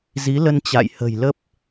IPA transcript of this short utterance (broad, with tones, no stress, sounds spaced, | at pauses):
z i˨˦ l ə˧ n t͡ɕ a̰˧˨ j h ə̤˨˩ j l ə˦˥ p̚